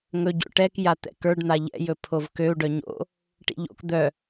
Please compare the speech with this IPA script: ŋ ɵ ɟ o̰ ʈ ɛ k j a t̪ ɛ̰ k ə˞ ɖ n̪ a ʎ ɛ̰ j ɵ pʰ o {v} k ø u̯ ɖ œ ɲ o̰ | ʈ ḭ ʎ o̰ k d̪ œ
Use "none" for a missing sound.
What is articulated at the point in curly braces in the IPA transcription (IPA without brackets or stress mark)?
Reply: v